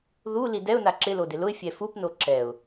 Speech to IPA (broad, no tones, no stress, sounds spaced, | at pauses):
ð u l i d ɛ ʊ̯ n a ǁ ɪ l o d ɪ l ʊ ɪ̯ fʲ ɛ f u p n o ǁ ɛ ʊ̯